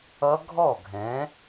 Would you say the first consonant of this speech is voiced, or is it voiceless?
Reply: voiced